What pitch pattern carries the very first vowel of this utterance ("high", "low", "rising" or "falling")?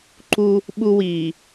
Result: high